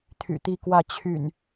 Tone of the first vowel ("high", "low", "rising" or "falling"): low